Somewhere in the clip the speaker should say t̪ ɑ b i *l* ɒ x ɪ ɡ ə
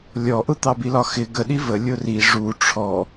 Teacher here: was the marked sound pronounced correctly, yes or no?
yes